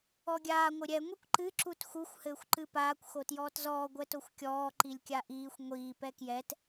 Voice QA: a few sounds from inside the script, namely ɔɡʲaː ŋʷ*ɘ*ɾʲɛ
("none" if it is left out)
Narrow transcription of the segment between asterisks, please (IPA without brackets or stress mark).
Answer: ɘ